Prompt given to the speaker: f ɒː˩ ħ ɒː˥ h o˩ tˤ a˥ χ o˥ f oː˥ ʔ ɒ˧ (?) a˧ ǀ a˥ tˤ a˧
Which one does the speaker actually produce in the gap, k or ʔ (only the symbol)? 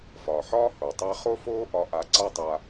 ʔ